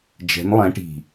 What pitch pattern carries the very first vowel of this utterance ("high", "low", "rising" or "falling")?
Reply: rising